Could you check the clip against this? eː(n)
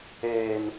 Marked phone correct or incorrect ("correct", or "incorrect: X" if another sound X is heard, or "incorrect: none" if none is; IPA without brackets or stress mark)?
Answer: correct